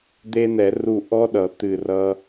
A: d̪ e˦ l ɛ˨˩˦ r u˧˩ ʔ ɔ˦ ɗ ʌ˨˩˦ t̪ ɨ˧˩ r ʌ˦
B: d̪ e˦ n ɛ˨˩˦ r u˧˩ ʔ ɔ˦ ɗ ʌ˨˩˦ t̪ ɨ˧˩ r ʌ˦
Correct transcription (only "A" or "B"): B